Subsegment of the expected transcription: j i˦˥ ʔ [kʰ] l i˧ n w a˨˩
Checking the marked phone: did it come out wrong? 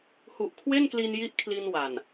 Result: no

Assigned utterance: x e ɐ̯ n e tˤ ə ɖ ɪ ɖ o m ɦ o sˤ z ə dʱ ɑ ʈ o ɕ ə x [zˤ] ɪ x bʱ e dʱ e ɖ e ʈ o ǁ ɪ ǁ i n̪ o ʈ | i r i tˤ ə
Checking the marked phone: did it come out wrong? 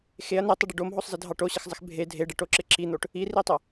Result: no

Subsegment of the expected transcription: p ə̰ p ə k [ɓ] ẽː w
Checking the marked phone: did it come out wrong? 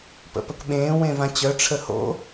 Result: no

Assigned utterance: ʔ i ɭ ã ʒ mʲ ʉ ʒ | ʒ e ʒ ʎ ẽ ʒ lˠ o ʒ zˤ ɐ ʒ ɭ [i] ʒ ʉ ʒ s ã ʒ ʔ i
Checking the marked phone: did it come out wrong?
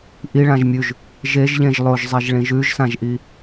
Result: yes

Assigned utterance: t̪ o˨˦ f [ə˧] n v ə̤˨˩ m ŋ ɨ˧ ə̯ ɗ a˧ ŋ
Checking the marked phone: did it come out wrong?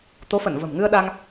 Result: yes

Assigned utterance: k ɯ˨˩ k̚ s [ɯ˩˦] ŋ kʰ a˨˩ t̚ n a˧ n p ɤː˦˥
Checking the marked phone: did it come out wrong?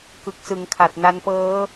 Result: no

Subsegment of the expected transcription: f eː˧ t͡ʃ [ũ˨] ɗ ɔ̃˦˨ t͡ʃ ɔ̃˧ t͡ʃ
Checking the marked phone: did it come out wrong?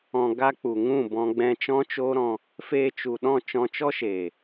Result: yes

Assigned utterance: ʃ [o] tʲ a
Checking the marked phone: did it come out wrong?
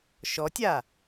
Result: yes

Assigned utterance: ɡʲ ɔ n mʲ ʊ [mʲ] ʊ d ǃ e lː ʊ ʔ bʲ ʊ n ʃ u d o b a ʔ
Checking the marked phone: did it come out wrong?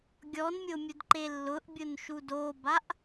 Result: no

